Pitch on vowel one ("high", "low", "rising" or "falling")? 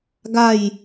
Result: falling